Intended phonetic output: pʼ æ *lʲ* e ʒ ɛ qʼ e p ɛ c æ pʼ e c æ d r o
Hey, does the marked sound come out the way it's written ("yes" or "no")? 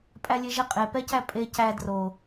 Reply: yes